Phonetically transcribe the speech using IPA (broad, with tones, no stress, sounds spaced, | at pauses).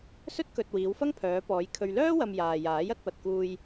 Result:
s ɵ˥ t̚ k ɵ˨ t̚ w iː˨˧ w f ɐ˥ ŋ pʰ œː˨˧ p ɔː˨˧ j kʰ ɵ˨ ɥ l œː˥ w ɐ˨ m j aː˨ j aː˨˥ j ɐ˨˥ t̚ p ɐ˨ t̚ k uː˨ j